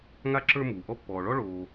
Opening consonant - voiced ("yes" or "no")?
yes